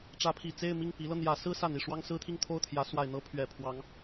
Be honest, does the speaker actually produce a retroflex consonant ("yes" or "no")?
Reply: yes